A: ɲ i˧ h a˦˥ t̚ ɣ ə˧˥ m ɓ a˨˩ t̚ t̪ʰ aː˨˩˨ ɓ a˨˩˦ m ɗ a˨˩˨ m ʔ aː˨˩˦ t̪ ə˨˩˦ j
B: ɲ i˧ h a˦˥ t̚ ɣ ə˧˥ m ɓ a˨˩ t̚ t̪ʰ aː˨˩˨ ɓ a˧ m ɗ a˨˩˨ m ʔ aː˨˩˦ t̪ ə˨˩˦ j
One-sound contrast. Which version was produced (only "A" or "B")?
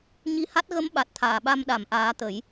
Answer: B